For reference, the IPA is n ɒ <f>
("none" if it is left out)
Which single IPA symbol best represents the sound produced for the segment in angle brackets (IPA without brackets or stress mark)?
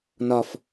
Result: f